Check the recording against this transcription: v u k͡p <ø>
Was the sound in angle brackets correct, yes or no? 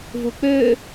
yes